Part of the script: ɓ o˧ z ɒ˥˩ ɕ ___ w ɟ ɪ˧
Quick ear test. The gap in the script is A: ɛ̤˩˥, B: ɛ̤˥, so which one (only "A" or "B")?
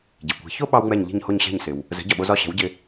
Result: A